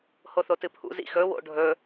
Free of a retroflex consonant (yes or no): no